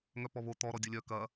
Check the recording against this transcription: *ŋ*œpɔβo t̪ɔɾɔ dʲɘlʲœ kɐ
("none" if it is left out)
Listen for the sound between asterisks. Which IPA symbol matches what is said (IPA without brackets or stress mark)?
ŋ